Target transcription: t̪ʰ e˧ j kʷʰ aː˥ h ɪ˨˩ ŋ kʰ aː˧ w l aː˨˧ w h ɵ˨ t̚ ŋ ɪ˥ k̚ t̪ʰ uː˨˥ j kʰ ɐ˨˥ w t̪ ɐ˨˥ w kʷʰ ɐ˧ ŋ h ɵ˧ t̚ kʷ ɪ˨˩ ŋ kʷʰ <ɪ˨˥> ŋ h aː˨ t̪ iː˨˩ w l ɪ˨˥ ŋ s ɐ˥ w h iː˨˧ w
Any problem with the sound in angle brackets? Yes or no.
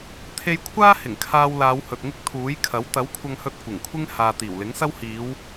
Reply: yes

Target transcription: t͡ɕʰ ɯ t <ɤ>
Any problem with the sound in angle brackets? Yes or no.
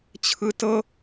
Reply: no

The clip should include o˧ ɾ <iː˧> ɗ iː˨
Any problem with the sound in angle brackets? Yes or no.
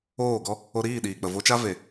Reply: yes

